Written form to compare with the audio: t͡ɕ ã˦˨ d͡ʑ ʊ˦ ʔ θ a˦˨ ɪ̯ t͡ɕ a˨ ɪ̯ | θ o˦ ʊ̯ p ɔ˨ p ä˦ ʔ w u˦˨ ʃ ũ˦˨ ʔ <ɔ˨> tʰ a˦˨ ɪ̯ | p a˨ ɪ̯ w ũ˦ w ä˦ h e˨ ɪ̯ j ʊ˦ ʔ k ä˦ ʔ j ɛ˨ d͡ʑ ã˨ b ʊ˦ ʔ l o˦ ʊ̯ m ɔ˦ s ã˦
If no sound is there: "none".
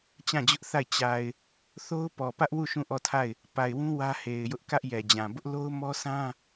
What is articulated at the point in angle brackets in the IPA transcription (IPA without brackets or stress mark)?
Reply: ɔ˦˨